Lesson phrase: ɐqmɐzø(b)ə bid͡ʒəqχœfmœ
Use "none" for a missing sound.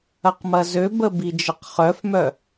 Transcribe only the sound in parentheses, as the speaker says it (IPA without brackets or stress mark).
b